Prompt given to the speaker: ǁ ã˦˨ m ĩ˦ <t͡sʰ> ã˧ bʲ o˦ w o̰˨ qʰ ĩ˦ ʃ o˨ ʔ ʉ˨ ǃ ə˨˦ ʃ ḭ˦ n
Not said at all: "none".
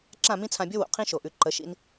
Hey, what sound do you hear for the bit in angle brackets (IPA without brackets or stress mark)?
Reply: t͡sʰ